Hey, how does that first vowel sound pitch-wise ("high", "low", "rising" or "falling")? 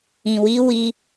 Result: low